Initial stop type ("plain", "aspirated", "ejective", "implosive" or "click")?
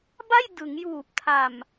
plain